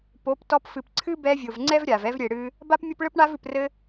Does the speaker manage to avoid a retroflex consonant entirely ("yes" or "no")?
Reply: no